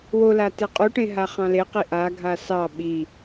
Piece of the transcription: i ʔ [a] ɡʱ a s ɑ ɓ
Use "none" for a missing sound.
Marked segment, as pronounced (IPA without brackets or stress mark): a